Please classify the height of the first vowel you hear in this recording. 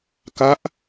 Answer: low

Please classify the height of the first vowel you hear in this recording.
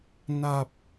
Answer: low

